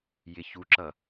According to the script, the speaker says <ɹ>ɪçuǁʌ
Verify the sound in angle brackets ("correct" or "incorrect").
incorrect